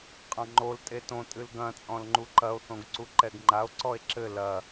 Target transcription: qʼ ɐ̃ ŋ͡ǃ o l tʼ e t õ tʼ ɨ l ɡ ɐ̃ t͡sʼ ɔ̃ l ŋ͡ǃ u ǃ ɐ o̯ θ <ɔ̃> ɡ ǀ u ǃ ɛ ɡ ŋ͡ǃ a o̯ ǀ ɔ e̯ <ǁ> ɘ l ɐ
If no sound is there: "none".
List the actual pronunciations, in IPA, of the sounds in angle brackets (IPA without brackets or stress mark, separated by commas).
õ, ǁ